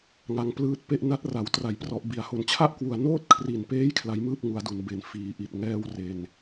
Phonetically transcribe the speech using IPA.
ŋa˧ŋplɯː˦˥t̚pe˥˩ʔ na˦˥t̚ ra˩˦w tra˩˦jprɔ˨˩ʔ bi˩˦a̯ho˨˩n t͡ɕʰa˥˩ʔkwu˨˩a̯ noː˥˩t̚kʰri˨˩npeː˦˥j kʰla˦˥jmɯː˥˩p̚ŋu˩˦a̯du˩˦n be˨˩n fiː˩˦ʔi˨˩t̚ ŋɛː˥˩wre˧n

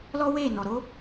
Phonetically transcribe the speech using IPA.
lɔ˦we˦˨nɔ˨ ɾo˨˦

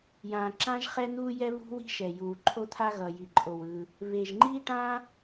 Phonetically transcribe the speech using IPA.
jãː˩ǁã˥ʒ χɛ˥n̪uː˥jɛ˥ βṳ˥wi̤˥ʃɛ˩juː˩ ǃʰo˥t̪ʰa˥ ɣʌ˩ji˩ǃʼo˩wɯ˩ | βe˩ʒŋ͡ǃi˥ʈã˥

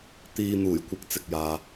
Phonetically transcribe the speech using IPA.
t̪iː˧n̪uː˨˩jkʷɪ˨˥k̚ t͡sɪ˨k̚jaː˨

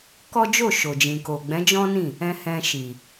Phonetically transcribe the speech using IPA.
kɔ˦d͡ʒo˦˨ʃo˨ d͡ʒĩ˨ko˨ ɡ͡bɛ̃˨˦d͡ʒɔ̃˦nĩ˦˨ | ɛ̃˧hɛ̃˧ʃi˨

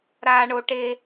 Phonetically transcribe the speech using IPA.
ɾaː˥ ɳo˥ ʈe˥

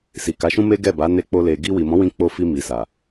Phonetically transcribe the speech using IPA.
si˨ka˨˦ʃũ˦ me˦ɡɛ˦˨ba˨˦ ne˧k͡po˧le˨ ɡi˧wi˨mɔ̃˨˦wĩ˧ k͡po˧ fi˧mi˨sa˨

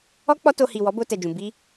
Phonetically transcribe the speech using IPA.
ɔ˦ k͡pɔ˦to˧ hi˨ wɔ˨˦bo˧tɛ˨d͡ʒũ˨ bi˧

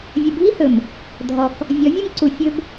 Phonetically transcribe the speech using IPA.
vʲə˨bʱi˦hɵ˨m | dʱɔ˨k | vʲɔ˨˦vʲɵ˦mǀu˨ fʲɵ˦b

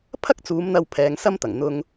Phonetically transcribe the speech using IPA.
pʰɐ˥k̚ t͡suː˨˥mn̪ɐ˧w pʰɛː˨ŋ sɐ˥mt̪ɐ˨˩ŋ n̪ʊ˨ŋ

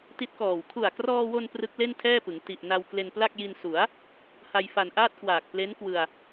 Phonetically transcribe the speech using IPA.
ti˦˥t̚kɔː˨˩w kʰu˨˩a̯krɔː˧wo˧n prɯ˦˥k̚le˥˩ntʰɛː˥˩pɯ˩˦ŋ ti˨˩ʔna˧w kle˧npla˥˩k̚ji˧n su˩˦a̯ | ha˧jfa˨˩n ʔaː˥˩t̚kwaː˨˩k̚ ple˦˥nkwɯ˧a̯

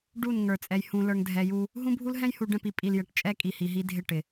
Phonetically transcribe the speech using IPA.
ɖu˦˨n ŋə˞˨t͡sʼɛ˨j hũ˨lə˞˨ŋdʱɛ˨ju˦ | ɦũ˦bʱu˦l ɦɛ̃˦jhu˨ɖɛ̃˦˨pi˨ pʼi˨l jɛ˨ʈt͡ʃʼɛ˦ kʼi˨hi˨ɦi˦dʱɪ˦˨ ʈɪ˨

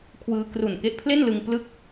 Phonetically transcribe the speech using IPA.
kʰwɯː˧ kru˨˩nke˦˥ʔpʰle˥˩nlɯ˧ŋ plɯ˥˩k̚

